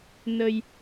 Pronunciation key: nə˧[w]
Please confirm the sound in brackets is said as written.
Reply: no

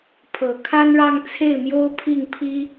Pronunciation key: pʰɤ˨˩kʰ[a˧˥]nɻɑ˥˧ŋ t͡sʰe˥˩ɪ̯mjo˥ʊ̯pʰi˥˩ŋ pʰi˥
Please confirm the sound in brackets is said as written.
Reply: no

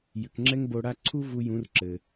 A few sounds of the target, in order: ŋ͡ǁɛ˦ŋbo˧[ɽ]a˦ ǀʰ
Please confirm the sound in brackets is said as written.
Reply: yes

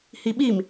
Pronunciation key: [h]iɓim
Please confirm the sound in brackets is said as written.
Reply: yes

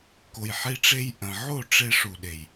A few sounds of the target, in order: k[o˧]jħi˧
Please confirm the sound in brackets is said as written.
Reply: no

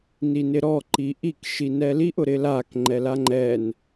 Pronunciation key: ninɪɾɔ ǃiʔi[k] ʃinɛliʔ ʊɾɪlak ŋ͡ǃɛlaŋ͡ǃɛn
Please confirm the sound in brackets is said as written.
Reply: yes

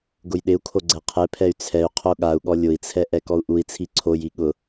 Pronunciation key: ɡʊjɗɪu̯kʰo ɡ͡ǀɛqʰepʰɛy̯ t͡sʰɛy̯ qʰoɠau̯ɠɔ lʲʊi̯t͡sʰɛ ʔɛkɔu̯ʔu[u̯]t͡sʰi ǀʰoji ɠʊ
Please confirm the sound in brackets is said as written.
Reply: no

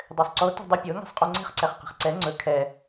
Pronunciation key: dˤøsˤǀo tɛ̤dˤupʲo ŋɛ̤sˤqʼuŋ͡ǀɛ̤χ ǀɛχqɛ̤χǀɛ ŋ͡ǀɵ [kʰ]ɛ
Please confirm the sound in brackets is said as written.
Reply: yes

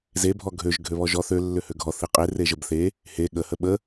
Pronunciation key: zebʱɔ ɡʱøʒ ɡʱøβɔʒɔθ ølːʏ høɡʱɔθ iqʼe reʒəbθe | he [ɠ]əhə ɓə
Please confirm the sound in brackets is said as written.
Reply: yes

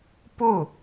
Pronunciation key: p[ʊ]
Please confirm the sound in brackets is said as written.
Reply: yes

